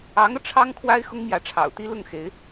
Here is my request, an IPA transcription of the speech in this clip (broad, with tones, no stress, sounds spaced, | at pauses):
ɑ˧˥ ŋ ɤ˧ ʈ͡ʂʰ ɑ˥ ŋ kʰ w a˥ ɪ̯ x ʊ˥ ŋ m j ä˧˥ ʈ͡ʂʰ ɑ̰˨˩ ʊ̯ t̪ i˥ l ʊ˥˩ ŋ x e˧˥ ɪ̯